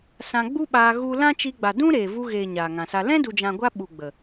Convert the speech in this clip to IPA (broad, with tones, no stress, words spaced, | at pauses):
sã˧ɡ͡bu˦ɓaː˧ ɣu˦ lã˦ t͡ʃi˧ɡ͡ba˨dũ˦ ɾeː˨vu˧ɣeː˨ ɲaː˨ŋã˨sa˧ lɛ̃˦du˨d͡ʒã˨ɡʷa˧ ɓu˨ɡ͡bə˨